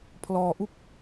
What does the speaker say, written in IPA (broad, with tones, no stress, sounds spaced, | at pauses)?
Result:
pʰ l ɔː˧ ʔ u˥˩ k̚